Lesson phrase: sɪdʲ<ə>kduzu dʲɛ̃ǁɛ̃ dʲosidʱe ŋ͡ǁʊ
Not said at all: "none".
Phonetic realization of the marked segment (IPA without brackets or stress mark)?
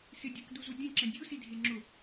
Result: ɛ